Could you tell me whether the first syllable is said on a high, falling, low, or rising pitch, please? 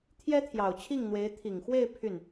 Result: high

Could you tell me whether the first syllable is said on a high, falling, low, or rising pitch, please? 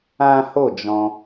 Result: high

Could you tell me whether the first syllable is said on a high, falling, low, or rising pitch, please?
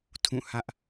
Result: falling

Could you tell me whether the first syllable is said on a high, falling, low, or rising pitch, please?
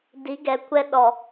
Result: rising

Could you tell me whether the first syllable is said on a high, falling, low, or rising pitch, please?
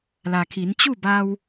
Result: low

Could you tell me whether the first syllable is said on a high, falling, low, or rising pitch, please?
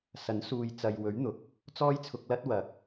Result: rising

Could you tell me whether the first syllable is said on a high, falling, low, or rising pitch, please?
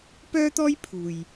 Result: high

